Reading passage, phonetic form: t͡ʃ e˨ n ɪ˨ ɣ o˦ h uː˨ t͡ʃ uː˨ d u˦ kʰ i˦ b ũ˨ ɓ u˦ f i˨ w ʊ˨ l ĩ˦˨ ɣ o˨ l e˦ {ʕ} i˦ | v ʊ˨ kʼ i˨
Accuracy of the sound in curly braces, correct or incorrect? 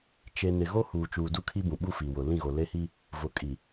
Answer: incorrect